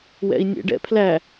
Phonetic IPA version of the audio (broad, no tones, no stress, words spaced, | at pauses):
wɛ̰i̯nʲɛ̰ɖɛ̰pʰlæ